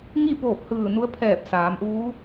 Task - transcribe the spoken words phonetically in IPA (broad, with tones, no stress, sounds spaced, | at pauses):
ŋ i˥˨ p oː˧˩ p̚ h ɯː˧˩ n u˧˥ ə̯ pʰ ɛː˧˩ p̚ s aː˩˧ m ʔ uː˧˥